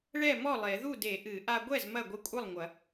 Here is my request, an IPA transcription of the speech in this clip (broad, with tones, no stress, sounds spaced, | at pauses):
ɭ ɛ˥˩ m ɔ˥˩ lˠ e˨˩˦ ð u˥˩ d e˨˩˦ ʔ ɨ˨˩˦ ʔ a˧ ɡʷ ɛ˥˩ z m ɐ˥˩ ɡʷ ɨ˧ kʷʼ ɘ˥˩ lˠ ŋʷ ɐ˨˩˦